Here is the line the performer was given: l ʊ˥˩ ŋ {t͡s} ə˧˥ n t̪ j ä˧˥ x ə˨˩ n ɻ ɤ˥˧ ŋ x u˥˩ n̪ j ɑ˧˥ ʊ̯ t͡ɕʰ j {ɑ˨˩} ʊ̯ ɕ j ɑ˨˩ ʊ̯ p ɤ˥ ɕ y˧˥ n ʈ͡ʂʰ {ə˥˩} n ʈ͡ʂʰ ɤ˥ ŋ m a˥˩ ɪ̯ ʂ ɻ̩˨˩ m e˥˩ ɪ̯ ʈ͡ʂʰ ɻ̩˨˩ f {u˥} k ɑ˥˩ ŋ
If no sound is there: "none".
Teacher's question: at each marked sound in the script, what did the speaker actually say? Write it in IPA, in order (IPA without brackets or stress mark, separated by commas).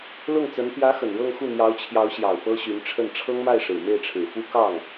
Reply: t͡s, ɑ˧˥, ə˥˩, u˥